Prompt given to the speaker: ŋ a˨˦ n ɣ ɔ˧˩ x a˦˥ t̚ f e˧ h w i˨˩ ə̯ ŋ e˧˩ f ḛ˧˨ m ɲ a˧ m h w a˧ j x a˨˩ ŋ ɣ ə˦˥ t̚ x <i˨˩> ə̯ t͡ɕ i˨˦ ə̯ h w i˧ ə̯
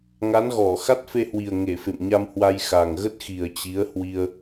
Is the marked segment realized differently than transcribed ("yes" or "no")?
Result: no